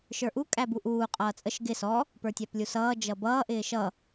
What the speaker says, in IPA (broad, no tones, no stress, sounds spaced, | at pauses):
ʃ ə˞ ʔ u kʼ æ b u ʔ uː qʼ ʌː t͡sʼ ə ʃ ɡ ɪ s ɔ | p ə˞ tʲ æ p lʲ u s ʌː d͡ʒ ʌ b ʌː ʔ ɪː ʃ ʌ